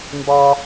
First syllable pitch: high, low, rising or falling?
high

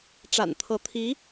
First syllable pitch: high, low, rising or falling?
low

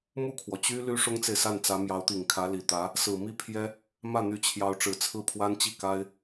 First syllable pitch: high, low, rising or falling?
falling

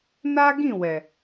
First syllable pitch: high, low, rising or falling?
high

